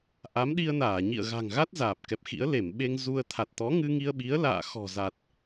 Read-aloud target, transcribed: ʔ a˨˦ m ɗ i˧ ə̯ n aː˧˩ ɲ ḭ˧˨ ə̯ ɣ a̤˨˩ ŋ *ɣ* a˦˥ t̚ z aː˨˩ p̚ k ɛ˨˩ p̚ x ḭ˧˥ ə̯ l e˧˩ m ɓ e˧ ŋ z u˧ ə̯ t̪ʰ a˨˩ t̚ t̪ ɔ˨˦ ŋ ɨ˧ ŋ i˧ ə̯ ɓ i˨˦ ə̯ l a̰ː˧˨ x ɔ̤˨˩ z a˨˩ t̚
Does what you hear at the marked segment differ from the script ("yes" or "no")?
no